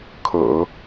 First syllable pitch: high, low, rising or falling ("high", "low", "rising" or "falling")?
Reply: low